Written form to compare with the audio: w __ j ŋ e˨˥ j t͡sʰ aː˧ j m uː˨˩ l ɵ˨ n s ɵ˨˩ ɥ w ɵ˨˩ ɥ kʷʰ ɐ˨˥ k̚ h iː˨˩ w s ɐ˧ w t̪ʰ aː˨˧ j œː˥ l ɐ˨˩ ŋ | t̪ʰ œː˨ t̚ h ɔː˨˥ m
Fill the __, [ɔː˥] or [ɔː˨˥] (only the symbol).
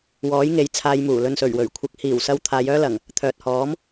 ɔː˨˥